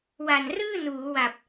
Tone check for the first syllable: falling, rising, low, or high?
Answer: low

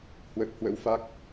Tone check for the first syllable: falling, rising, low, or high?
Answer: low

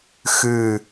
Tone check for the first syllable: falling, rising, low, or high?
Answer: low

